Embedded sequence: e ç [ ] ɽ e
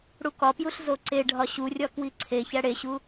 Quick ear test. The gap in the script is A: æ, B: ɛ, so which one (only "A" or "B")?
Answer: A